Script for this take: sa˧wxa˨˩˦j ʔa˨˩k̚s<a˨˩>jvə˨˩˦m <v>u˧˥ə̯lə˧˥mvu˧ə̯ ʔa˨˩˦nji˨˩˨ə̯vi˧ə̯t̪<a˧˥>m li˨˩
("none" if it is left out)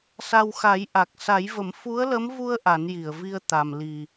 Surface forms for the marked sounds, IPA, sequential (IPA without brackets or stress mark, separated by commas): a˨˩˦, f, a˨˩